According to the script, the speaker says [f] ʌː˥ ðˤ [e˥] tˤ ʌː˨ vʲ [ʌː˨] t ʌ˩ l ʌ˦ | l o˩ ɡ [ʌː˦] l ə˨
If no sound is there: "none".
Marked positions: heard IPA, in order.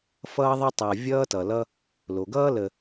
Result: f, e˥, ʌː˥, ʌː˥

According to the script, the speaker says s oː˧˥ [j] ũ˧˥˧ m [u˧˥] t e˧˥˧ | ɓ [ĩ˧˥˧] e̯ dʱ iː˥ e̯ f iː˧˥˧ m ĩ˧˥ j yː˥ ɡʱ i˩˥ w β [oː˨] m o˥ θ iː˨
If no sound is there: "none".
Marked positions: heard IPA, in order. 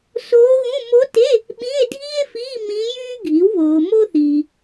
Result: ɣ, o˧˥, ĩ˧˥˧, oː˨

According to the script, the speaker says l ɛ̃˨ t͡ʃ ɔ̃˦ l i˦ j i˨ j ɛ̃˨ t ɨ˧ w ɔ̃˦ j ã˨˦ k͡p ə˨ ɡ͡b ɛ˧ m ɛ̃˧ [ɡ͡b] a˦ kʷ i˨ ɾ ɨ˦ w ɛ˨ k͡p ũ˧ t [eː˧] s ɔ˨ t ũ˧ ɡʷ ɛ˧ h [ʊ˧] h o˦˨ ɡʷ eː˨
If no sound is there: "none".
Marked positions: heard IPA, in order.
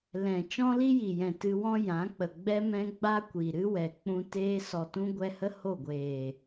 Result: ɡ͡b, eː˧, ə˧

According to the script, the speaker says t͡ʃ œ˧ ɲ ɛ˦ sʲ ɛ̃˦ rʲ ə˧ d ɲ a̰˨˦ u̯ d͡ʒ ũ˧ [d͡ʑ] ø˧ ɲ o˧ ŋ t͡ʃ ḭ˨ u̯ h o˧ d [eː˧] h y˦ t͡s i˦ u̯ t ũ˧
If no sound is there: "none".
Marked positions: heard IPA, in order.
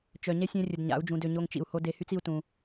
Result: d, e˧

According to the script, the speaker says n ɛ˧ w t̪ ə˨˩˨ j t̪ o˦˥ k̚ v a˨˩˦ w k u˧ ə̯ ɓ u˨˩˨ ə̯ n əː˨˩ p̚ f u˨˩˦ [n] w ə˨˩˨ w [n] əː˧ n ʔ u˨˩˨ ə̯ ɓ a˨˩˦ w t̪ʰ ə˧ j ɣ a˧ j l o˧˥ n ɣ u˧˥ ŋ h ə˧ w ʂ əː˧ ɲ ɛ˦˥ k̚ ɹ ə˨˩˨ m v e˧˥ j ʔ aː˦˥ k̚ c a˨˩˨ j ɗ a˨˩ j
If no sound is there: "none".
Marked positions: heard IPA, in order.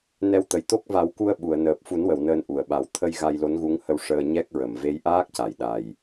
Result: n, n

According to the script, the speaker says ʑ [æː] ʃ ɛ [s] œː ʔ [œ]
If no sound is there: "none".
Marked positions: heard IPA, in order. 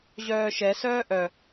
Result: œː, s, œ

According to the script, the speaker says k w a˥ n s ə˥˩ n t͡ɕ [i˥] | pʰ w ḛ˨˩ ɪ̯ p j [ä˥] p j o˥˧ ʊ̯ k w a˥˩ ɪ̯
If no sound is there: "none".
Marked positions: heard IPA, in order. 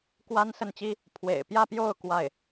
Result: i˥, ä˥˧

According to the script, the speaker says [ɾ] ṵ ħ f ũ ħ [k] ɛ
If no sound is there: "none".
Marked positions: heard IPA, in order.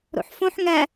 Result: ɾ, ŋ

